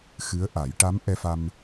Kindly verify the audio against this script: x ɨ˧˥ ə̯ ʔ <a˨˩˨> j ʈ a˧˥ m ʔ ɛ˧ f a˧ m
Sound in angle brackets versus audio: incorrect: a˨˩˦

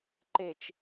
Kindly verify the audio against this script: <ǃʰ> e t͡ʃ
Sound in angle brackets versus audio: incorrect: ǃ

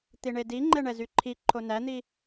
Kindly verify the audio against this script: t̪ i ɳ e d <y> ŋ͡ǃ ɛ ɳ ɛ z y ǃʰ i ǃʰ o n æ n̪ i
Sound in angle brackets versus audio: incorrect: i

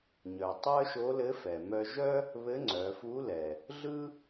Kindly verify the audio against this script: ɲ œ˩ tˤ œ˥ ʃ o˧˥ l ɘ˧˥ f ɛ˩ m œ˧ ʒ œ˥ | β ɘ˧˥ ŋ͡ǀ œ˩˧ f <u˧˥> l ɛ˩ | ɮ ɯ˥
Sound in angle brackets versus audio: correct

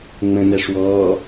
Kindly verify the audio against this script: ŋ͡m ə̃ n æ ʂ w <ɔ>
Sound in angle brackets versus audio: incorrect: ɔː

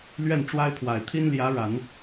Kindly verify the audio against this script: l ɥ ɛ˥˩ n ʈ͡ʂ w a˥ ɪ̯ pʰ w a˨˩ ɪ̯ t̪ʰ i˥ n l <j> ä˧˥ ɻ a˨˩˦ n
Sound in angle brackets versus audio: correct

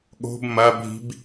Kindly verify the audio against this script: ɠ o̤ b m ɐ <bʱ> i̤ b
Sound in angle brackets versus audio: correct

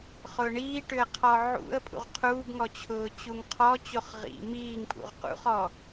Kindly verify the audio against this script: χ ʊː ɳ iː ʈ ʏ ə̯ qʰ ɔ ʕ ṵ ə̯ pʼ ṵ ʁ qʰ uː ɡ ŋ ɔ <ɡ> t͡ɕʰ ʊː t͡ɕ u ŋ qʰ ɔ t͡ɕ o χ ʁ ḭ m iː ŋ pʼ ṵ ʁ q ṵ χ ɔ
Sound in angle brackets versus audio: incorrect: none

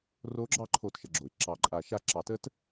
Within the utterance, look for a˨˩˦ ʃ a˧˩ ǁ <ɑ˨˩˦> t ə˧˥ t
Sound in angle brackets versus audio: correct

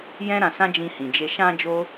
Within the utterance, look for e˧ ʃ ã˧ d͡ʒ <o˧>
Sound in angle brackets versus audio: incorrect: o˦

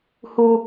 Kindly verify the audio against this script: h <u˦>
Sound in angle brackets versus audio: correct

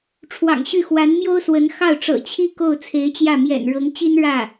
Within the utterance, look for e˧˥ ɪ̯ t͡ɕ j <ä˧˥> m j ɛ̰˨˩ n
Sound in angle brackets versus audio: incorrect: ä˥˩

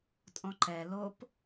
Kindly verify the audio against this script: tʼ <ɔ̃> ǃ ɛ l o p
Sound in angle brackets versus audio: correct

